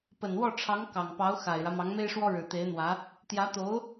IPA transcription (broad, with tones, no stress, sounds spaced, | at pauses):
p ə˨˩ n w ɔ˥˩ ʈ͡ʂʰ ɑ˧˥ ŋ k ɑ˨˩ ŋ p ɑ˧˥ ʊ̯ x a˨˩ ɪ̯ ɻ ä˦ m ɑ˧˥ ŋ m e˥ ɪ̯ ʂ w ɔ˥ ɻ ɻ̩˨˩ t̪ e˧˥ ɪ̯ n̪ w ä˧˥ | t̪ j ä˧˥ t̪ o˧˥ ʊ̯